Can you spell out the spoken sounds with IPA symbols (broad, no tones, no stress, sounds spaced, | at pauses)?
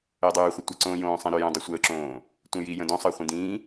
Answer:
əː dˤ ʉː χʷ ə tʷ ə ǀ õː j õː sˤ ĩ ɾ ø j õ dˤ ø sʷ əː ǁ õː | tʷ ə̃ j i j ə̃ d õ sˤ əː χʷ ĩ d ĩː